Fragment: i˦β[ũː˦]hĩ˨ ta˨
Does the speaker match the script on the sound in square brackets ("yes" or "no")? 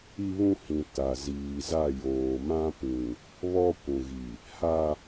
no